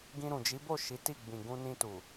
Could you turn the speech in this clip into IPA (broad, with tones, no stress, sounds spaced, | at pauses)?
ɡ ĩ˧ ɾ ũ˨ d͡ʒ i˨˦ b o˦˨ ʃ i˨˦ t i˦˨ ɡ͡b ĩ˨ ɡ ũ˧ n ĩ˧ t u˨